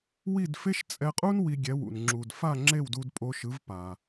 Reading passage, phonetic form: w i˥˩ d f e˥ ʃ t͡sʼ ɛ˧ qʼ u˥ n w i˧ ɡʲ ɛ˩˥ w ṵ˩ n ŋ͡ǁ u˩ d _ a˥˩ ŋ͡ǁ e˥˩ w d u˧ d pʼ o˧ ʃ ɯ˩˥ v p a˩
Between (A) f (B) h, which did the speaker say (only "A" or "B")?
A